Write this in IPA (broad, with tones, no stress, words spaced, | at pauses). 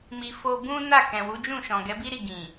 mi˧ fo˧bũ˦ na˦˨kɛ̃˨wu˨˦d͡ʒũ˦˨ ʃɔ̃˨ɡɛ˨˦bi˦ɾi˦˨ ɡĩ˨